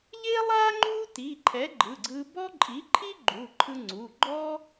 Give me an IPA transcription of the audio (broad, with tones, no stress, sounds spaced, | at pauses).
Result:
ʎ e˥ lˠ a˥ ŋ͡ǃ u˥ t i˩˧˩ ǃʰ ɛ˨˥ ɡ͡ǃ ɯ˩˧˩ ɡ͡ǀ ɯ˧ b ɔ˥ ǃʼ i˨˥ ǃʰ i˥ ɡ͡ǃ u˩˧˩ ǃʰ ɯ˧ ŋ͡ǀ u˩˧˩ ɡ͡ǃ ɔ˥